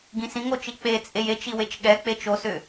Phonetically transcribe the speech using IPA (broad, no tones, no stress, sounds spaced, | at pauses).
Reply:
ɡ ĩ s ĩ ŋ o t͡ʃ i k͡p e t͡sʼ e j e t͡ʃ i w e t͡ʃ ɠ ɛ k͡p e t͡ʃ o s ʏ